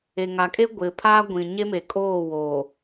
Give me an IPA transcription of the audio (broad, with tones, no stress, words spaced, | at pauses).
e˨ŋa˨kʼe˦ ɡʷɪ˨ pʰaː˦ɡʷĩ˨ɲe˦me˨ kʼoː˦˨wo˨